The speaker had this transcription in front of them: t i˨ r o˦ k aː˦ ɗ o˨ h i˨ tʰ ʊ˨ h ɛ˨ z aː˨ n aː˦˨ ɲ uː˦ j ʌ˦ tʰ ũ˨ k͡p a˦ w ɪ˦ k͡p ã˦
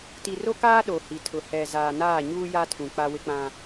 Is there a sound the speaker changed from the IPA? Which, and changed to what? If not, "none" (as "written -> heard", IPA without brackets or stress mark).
ʌ˦ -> a˦